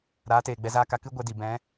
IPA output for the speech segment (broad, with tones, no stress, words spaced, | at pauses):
ɾaː˨˦teː˨ ɡ͡bɛ˧zaː˦ka˧ kɨ˦ ɡʷɛ˧di˨ bɛ̃˨˦